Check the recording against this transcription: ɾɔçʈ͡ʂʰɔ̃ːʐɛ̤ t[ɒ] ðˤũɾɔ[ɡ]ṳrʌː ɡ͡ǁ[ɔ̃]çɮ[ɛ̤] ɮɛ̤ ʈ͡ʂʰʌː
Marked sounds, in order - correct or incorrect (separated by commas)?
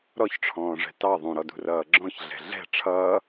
incorrect, incorrect, correct, correct